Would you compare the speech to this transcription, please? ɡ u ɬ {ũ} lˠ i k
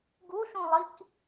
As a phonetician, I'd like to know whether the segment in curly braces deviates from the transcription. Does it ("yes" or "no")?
no